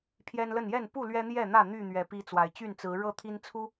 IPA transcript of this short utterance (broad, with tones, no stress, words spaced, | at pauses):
pʰjɛ˦nlə˥˨n jɛ˥˨npu˥˨ lɥɛ˦n̪jɛ˥˨n̪ä˥˨ n̪y˥˨ n̪ɥɛ˨˦pi˦t͡swa˨˩ɪ̯ t͡ɕy˥˨nt͡sɹ̩˨˦ɻɤ˥˨ t̪ʰi˦nt͡sʰu˦